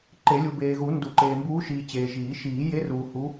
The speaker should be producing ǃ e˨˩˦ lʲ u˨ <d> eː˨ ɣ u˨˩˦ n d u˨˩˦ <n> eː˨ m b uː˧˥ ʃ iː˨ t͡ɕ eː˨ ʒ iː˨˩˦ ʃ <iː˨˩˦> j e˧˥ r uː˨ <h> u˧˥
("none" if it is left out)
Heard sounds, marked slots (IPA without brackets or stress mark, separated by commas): b, ǃ, iː˨˩˦, h